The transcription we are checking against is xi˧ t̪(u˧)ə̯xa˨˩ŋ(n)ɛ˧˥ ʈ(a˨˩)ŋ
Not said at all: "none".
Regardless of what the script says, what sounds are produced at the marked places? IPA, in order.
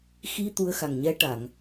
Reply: u˧, ɲ, a˨˩˨

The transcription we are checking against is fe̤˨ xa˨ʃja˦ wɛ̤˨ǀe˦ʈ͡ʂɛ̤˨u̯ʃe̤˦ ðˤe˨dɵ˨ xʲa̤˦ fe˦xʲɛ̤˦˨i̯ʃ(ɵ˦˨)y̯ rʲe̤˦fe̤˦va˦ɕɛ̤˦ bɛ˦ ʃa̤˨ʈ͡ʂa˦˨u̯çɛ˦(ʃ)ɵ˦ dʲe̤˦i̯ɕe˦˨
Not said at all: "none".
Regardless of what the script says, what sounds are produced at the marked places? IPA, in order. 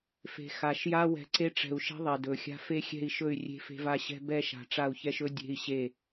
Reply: ɵ˦˨, ʃ

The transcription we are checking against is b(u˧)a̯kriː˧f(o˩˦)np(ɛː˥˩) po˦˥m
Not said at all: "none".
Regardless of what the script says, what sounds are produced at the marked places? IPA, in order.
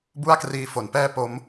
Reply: u˥˩, o˩˦, ɛː˥˩

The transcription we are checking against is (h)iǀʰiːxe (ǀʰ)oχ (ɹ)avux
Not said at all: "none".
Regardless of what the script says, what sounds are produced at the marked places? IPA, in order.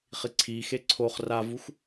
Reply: χ, ǀʰ, r

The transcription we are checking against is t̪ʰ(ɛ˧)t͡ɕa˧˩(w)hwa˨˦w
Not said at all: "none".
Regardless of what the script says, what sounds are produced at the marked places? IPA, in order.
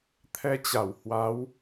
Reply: ɛ˧, w

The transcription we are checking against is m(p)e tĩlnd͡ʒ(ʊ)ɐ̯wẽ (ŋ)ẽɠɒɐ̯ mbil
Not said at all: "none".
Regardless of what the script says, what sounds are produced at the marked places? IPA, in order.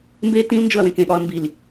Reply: b, ʊ, k

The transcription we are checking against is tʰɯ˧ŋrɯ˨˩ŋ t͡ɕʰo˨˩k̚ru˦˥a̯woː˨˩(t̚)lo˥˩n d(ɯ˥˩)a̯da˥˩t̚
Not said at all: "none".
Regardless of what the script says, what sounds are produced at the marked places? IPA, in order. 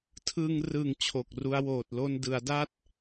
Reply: t̚, ɯ˩˦

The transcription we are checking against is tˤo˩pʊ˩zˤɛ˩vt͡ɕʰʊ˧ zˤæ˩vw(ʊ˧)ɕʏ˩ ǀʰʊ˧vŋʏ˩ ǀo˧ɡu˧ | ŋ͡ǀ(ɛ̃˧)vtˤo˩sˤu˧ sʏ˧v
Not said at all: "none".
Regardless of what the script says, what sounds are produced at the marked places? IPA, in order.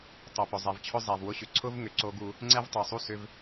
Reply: ʊ˧, ɛ˧

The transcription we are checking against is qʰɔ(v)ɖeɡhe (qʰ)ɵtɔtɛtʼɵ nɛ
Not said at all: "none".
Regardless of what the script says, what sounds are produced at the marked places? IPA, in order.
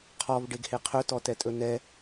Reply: v, qʰ

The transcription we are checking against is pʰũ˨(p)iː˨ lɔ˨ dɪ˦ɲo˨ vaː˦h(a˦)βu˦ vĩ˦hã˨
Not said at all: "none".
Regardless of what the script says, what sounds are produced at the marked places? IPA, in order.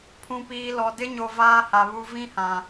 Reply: p, a˨

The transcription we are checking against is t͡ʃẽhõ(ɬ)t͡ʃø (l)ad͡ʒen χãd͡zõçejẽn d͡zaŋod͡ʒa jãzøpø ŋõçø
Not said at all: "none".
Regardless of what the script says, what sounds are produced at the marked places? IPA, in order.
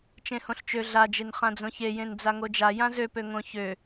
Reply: ɬ, ɮ

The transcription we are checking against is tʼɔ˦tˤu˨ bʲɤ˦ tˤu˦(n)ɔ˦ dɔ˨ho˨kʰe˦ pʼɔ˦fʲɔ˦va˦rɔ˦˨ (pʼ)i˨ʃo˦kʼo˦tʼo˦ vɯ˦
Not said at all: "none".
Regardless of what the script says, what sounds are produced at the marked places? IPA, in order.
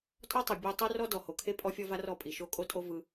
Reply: r, pʼ

